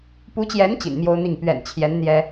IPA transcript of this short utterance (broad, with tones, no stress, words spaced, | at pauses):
pu˧˥t͡ɕjɛ˧˥n t͡ɕḭ˨˩nmjo˥ʊ̯n̪i˥˩ŋ pɥɛ̰˨˩nt͡ɕʰjɛ˧˥n n̪jɛ˥